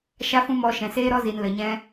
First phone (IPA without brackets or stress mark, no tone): ʃ